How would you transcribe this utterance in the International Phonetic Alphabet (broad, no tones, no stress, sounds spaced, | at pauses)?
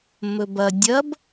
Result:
m ɵ b ɐ dʲ ɐ b